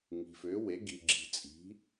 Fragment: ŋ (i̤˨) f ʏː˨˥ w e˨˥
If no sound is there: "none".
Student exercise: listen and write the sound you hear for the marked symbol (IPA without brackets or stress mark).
i̤˨